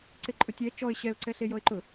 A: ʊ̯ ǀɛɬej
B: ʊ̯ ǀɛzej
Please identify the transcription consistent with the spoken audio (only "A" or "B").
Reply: A